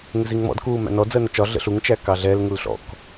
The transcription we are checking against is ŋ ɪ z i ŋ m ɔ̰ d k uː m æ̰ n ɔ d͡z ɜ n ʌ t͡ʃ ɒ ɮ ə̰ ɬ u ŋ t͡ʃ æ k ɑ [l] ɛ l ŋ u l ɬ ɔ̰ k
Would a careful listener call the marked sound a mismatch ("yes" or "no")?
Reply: yes